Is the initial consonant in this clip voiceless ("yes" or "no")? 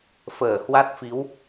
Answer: yes